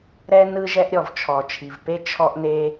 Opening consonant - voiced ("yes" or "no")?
yes